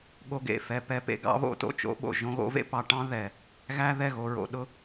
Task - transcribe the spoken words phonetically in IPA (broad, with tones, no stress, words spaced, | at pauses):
ɠo˦ɡḛ˨fɛ˧ pɛ˧ pḛ˧ɡɑ̰˨˦βo̰˧ to̰˧t͡ʃo̰˨˦ɓo̰˨ ʒõ˧ɣo̰˨˦vḛ˦pɑ˨ ʈɑ̃˦ ðɛ˨ | ɣæ˦ðɛ˦˨ɣo˨ ɹo̰˨ɗʊ˦